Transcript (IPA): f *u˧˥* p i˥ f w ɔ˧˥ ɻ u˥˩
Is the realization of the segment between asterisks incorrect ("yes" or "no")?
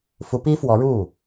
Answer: no